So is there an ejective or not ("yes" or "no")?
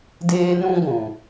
no